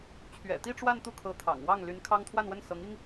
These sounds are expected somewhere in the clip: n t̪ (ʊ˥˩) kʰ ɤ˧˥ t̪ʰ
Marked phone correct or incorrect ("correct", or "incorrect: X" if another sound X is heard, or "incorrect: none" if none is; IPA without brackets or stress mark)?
incorrect: u˥˩